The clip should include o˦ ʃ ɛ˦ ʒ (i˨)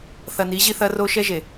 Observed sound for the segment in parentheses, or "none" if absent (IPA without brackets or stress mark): e˨